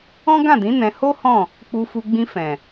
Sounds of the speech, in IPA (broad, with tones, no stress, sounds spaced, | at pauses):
ɔ̃˦ ɡ ã˦˨ d ĩ˨˦ n ɛ̃˧ h o˦ h ɔ̃˦˨ | k͡p u˧ f u˧ ɡ͡b ĩ˧ f ɛ̃˨